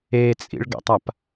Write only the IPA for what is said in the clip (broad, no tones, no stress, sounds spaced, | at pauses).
e t͡sʼ ḭ ɭ ɡ ɛ̰ tˤ a p